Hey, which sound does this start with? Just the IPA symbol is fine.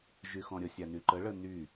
ʒ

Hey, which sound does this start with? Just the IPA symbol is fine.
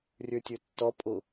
rʲ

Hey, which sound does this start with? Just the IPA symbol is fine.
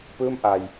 p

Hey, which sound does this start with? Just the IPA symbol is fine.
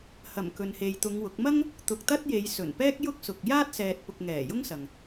h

